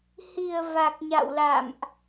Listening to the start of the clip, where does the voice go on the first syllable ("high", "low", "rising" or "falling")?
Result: low